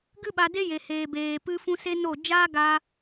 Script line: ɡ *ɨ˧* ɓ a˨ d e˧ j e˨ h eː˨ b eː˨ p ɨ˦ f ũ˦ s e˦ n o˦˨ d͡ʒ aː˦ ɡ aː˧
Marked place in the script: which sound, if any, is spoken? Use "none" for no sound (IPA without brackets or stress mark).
ɨ˧